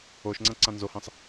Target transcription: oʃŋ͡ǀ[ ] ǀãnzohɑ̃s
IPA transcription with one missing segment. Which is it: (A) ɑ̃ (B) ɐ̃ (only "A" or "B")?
B